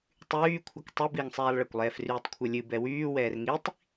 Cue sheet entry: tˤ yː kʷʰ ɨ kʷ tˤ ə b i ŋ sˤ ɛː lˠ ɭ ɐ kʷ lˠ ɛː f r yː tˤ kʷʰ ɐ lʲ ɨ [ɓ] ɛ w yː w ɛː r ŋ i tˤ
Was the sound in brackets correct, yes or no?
no